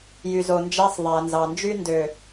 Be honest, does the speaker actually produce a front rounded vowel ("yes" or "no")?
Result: yes